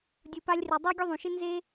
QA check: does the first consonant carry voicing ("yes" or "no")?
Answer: yes